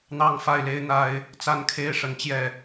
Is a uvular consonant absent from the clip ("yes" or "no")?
yes